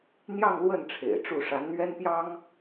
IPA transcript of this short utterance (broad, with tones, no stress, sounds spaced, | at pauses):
n̪ j ɑ˥˧ ŋ l w ə˥˩ n ʈ͡ʂʰ ḛ˨˩ ɪ̯ ʈ͡ʂ u˥˩ ʂ a˧˥ n n̪ ɥ ɛ˥ n p j ɑ˥ ŋ